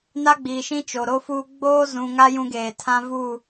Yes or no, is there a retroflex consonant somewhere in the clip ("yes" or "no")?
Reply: no